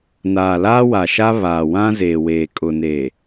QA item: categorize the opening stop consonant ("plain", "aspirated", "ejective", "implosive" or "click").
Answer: ejective